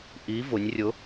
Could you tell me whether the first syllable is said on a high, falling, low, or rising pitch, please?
rising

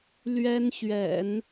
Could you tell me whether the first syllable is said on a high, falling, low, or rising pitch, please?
high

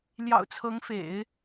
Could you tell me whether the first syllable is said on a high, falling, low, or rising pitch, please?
low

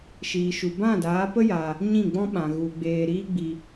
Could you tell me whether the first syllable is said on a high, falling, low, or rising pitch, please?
low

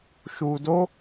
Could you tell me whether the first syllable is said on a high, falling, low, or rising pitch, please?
low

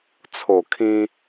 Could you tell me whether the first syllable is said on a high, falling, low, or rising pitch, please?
low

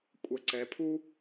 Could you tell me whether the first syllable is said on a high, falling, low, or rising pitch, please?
rising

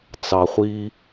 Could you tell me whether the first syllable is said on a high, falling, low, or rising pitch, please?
low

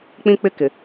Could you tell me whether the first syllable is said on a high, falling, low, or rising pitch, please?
high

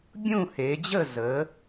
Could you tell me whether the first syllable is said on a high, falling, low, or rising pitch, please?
falling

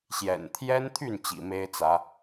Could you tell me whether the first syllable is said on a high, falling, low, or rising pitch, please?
low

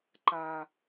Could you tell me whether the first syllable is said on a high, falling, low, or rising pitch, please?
low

